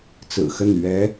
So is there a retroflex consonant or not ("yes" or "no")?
no